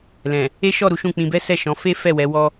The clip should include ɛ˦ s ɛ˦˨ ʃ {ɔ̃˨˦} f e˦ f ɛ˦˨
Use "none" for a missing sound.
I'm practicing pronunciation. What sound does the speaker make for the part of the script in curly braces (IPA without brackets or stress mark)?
ɔ̃˨˦